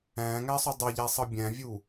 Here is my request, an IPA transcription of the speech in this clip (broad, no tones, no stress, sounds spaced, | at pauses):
æ̃ː ŋ æ sˤ u dˤ ɤ ʎ æ sˤ ɤ bʲ æ̃ vʲ u